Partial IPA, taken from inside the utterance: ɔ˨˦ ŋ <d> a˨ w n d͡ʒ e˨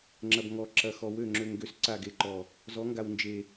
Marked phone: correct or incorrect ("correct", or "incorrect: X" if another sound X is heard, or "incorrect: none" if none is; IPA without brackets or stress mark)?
incorrect: ɡ